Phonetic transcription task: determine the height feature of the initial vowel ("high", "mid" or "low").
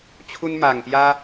high